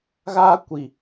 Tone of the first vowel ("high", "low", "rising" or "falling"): high